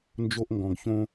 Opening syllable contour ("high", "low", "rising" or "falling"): high